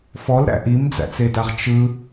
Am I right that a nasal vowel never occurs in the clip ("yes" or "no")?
yes